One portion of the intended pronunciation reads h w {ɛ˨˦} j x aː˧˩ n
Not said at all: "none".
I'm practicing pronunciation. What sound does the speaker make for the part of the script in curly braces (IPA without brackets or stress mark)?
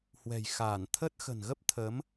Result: ɛ̤˨˩